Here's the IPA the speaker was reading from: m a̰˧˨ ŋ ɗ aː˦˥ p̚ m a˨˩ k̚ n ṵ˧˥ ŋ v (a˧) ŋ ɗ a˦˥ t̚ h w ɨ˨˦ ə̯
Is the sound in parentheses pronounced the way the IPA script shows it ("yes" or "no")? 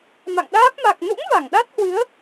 no